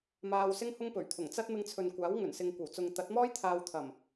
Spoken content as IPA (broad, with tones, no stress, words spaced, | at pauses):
maː˧wsɪ˥ŋhʊ˥ŋ pɵ˨˩ɥt̪ʰʊ˨˩ŋt͡sɐ˥t̚ mɪ˧ŋt͡sʰɵ˨nkʷaː˨˥w ŋɵ˨˩nsɪ˨ŋ kʷɐ˨˩wt͡sʊ˨ŋt̪ɐ˨˥t̚mɔː˥j t̪ʰaː˧wt̪ʰɐ˨˩m